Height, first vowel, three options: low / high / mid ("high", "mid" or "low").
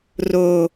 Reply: mid